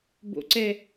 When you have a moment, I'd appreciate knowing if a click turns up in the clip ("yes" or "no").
yes